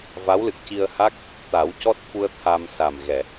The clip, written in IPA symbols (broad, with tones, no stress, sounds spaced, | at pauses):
v a˧˥ w l ɨ˨˩ k̚ c i˧ ə̯ h a˦˥ k̚ | t̪ a˨˩˦ w c ɔ˦˥ t̚ f u˧ ə̯ t̪ʰ a˧ m s a˨˩ m ɣ ɛ˨˩˨